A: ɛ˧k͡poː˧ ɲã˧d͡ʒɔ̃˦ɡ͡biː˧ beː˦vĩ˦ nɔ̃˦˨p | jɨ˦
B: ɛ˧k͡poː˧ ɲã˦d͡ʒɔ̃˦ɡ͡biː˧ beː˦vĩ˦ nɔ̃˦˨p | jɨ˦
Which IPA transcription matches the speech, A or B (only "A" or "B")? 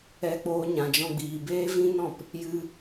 A